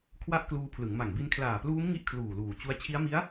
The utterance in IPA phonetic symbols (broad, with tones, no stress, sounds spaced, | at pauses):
kʰ w a˦˥ ʔ k l uː˧ pʰ l ɯ˩˦ ŋ m a˨˩ ŋ b i˧ n kʰ l aː˨˩ p l uː˦˥ m ŋ i˦˥ ʔ kʰ l uː˨˩ l uː˨˩ t͡ɕ u˦˥ a̯ t͡ɕʰ i˦˥ a̯ m i˦˥ a̯